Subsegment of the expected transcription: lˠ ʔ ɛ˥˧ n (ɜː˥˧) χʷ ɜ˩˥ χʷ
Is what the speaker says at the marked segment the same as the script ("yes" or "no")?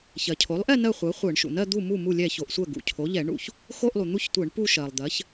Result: no